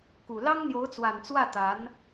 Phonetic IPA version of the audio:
k u˨˩ l ɑ˥ ŋ n̪ j o˧˥ ʊ̯ t͡s w a˨˩ n t͡s w ä˥˩ t̪ a˧˥ n

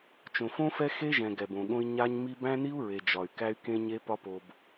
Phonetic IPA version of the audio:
t͡ʃ õ˨ f õ˦ f ɛ˦ x e˦ ʒ ɛ̃˨ ɡ ɛ˨ b õ˨ ɠ õ˦ i̯ ɲ a˦ ɲ m i˦ b æ̃˦ n i˦ u̯ ɹ e˨ d͡ʒ ɒ˨ y̯ k æ˦ y̯ k ẽ˦ ɲ e˦ p ɒ˦ p o˨ b

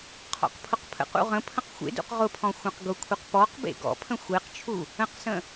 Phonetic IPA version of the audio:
qʰ ɔ̰ q pʰ ʊ q pʰ ə̰ q ṵ ʁ ə̃ pʰ ə̃ q xʷ ḛ d ṵ q ʁ ʊ pʰ ɔ̃ xʷ ẽ q ɡ ʊ kʷʰ e q p ɔ q b ḛ ɡ ɔ̰ pʰ ə̃ xʷ e q t͡ʃʰ u | ə̃ q s ə̃

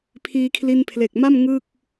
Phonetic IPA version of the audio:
pʰ iː˧ kʰ l i˧ n pʰ l e˨˩ k̚ m a˥˩ m ŋ ɯ˥˩ k̚

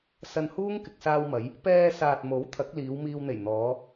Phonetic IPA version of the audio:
s ɐ˧ n h uː˥ ŋ k ɪ˨ k̚ s aː˧ w m ɐ˨˧ j | p ɛː˧ s aː˨ t̚ m o˨˥ w t̪ʰ ɐ˨˥ k̚ l iː˨˧ w m iː˧ w n̪ e˨˩ j n̪ ɔː˨˧

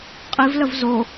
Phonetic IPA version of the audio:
qʼ i v l ə v z o

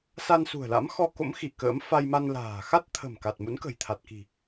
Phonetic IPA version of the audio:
s a˧ n s ṳ˨˩ ə̯ l a̰˧˥ m x ɔ˧ k o̰˧˥ m x i˧˩ k ə̰ː˧˥ m f a˧ j m a˧ n l a̤ː˨˩ x a˦˥ t̚ t̪ʰ ə̤˨˩ m k a˨˩ t̚ m ṵ˧˥ n k ə̤˨˩ j t̪ʰ a˨˩ t̚ k i̤˨˩

